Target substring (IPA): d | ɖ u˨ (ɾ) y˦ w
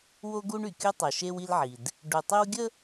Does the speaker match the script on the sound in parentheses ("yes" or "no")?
no